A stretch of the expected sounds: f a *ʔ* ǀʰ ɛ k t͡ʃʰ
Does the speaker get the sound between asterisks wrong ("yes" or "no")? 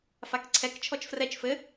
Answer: yes